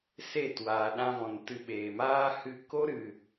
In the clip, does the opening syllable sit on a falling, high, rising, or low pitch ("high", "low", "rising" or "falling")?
falling